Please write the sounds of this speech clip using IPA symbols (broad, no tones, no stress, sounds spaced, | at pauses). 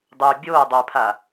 dˤ y bʲ o dˤ ʊ pʰ a